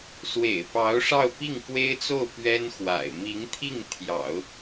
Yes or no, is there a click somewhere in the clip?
no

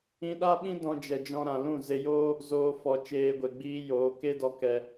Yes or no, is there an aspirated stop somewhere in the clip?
no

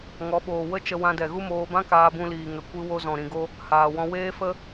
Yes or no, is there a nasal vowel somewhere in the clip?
yes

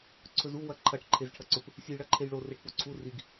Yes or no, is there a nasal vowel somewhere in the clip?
no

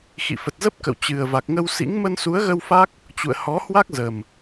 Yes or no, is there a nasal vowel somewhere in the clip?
no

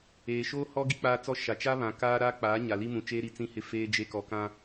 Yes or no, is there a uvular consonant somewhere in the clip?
no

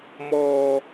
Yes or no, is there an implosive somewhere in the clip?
no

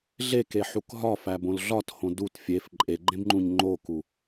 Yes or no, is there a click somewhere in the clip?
yes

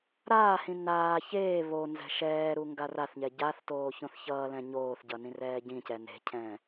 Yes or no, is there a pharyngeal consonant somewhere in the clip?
no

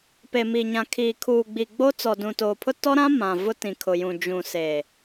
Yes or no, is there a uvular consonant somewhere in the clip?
no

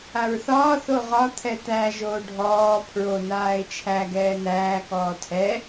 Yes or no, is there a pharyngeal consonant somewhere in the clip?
no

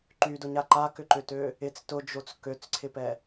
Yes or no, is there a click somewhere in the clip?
yes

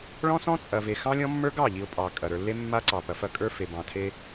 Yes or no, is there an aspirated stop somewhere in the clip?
yes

